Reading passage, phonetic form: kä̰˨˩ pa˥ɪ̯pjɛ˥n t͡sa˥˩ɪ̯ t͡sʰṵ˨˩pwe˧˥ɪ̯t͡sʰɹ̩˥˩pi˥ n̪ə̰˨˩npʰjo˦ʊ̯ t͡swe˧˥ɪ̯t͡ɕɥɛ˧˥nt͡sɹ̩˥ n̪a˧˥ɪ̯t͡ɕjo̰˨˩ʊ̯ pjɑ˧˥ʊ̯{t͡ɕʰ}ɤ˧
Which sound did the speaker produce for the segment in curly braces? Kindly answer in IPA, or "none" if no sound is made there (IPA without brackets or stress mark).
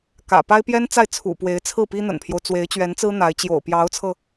t͡sʰ